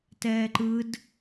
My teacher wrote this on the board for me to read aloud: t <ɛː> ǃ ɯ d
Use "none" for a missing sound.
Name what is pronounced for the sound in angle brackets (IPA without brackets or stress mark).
ɛː